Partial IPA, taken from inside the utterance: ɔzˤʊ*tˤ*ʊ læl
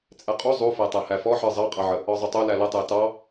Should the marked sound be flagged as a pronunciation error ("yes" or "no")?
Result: no